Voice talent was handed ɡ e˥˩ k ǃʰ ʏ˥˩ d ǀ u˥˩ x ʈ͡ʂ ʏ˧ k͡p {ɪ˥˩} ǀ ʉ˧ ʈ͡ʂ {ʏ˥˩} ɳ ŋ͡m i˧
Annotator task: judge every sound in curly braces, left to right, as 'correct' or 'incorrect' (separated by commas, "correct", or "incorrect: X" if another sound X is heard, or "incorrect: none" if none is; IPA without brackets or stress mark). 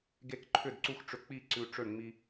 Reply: incorrect: i˥˩, correct